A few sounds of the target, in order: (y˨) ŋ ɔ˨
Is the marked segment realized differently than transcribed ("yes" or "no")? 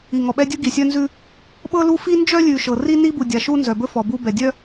yes